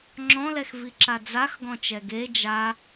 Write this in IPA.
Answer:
ŋ͡ǁ ɔ̃ l ɛ x v i ǁ a d͡z a x ɡ ɔ̃ t͡ʃ ɛ ɡ e d͡ʒ a

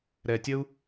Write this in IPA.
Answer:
ɾ ɛ˨ tʲ ə˦ u̯

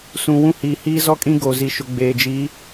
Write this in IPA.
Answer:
s ũ˨ w ũ˦ h iː˨ h iː˦ z ɔ˦ kʼ ĩ˦ ɡ o˨ z i˨ ʃ ʊ˨ ɡ͡b eː˨ d͡ʒ i˨˦

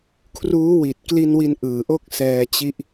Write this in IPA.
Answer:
kʰ r uː˦˥ w i˨˩ t̚ k l i˧ n w i˧ n ʔ ɯː˨˩ ʔ o˥˩ k̚ s ɛː˧ t͡ɕ i˦˥ ʔ

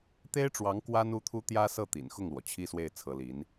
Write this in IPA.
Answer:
t̪ e˥ ɪ̯ ʈ͡ʂ w ɑ˧˥ ŋ k w a˥ n u˥ t̪ʰ u˥ t̪ j ä˥ s ɤ˥˩ t̪ ḭ˨˩ n x ʊ˥˩ ŋ l w ɔ˩ t͡ɕʰ i˥˧ s w e˥˩ ɪ̯ t͡sʰ ɤ˧˥ l i˧˥ n

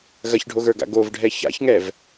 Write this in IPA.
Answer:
ɣ ɐ ç ɖʱ o ɣ ə˞ ɡ a̰ ɡ o v ɖʱ ɛ ç a̰ ç ŋ ɛ v

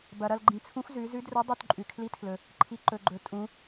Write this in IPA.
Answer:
b ɐ˩ ɾ ɐ˦˨ l ɡ͡ǃ ĩ˩˧ t͡sʰ ũ˧˥ x z ʉ˩˧ z ʉ˧˥ d r ɵ˧˥ dˤ u˦˨ t ǃʼ ʉ˩ kʰ l i˧˥ tʰ l ɵ˩ | ǃʰ i˩˧ ǃ ɵ˩ ɡ͡ǃ ɵ˩˧ tʼ ũ˩˧

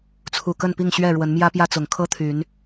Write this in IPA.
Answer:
t͡sʰ u˨˩ k ə˥˨ n p i˥˨ ŋ ɕ ɥ ɛ˥˨ ɻ w ə˨˦ n m j ä˦ p j ä˦ t͡s ʊ˨˦ ŋ kʰ ɤ˦ t̪ʰ y˨˦ n

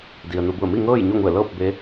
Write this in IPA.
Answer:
d i˩ ə̯ n u˩˧ b u˧˩ ə̯ m i˥˨ ŋ ɤː˥˨ j ɲ o˥˨ ŋ u˧˩ ə̯ l ɤː˥˨ p̚ b e˧˥

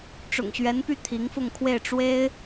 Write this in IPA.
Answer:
ʈ͡ʂ ʊ̰˨˩ ŋ ɕ ɥ ɛ˧˥ n p y˥˩ t̪ʰ i˧˥ ŋ f ʊ˥˧ ŋ kʰ w e˥˩ ɪ̯ ʈ͡ʂ w e˥ ɪ̯

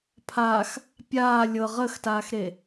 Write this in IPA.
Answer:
pʰ a x | pʲ aː lʲ ɤ ʁ əː x t aː x ɾ e

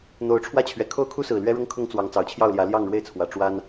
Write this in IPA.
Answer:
n̪ o˨˦ ʊ̯ ʈ͡ʂʰ w ä˥˨ t͡ɕʰ ɥ ɛ˨˩ kʰ o˦ ʊ̯ kʰ u˦ s ɹ̩˨˩ l ɥ ɛ˦ ɻ ʊ˦ ŋ kʰ ʊ˦ ŋ t͡s w ɑ˨˦ ŋ t͡s ɑ˨˩ ʊ̯ t͡ɕʰ j ɑ˥˨ ʊ̯ l j ä˨˦ l j ɑ˥˨ ŋ ɻ w e˥˨ ɪ̯ t͡sʰ w ä˨˦ ʈ͡ʂ w a˦ n

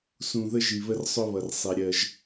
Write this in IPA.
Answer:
s ũ˨ ð ə˦ ʒ i˨ β ə˦ r sˤ ʊ˦ β ʌ˨ r sˤ i˨ ɾʲ ɜ˦ ʒ

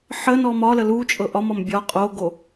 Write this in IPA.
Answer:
ħ ə n ɔ m ɒ l ə l u t͡ʃʼ ɤ ʔ ɒ m ɒ m bʲ ɒ qʼ o ɡ o

